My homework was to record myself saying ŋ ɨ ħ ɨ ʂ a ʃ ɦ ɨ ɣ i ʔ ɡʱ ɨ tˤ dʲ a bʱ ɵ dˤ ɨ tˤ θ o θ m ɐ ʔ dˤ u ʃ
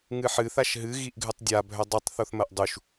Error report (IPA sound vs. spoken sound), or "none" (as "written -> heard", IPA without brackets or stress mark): ʂ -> θ